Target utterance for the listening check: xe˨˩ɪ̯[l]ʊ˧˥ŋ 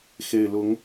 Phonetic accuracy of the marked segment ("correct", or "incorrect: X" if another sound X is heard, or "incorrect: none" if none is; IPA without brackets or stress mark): correct